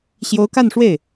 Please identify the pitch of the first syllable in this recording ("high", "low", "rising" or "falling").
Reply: rising